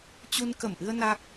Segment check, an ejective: absent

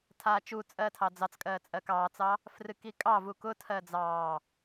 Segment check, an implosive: absent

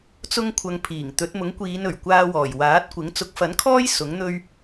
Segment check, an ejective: absent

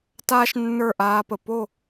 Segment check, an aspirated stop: absent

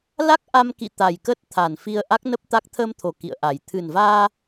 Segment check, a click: absent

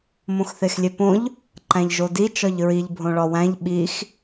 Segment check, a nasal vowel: present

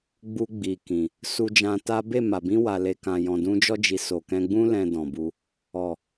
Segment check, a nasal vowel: present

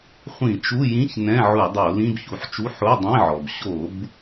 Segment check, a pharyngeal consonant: present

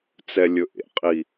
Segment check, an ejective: present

